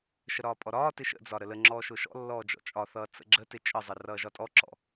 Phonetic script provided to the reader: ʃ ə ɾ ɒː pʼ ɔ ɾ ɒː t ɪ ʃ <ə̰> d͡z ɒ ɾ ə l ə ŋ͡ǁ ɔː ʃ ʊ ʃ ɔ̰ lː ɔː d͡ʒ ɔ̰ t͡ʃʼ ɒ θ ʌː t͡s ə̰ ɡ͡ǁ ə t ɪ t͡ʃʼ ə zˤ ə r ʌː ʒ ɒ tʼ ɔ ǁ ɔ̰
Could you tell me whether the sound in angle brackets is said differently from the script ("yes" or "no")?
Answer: no